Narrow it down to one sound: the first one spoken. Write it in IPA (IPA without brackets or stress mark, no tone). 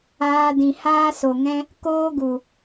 aː